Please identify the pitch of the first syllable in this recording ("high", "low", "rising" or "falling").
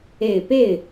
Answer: low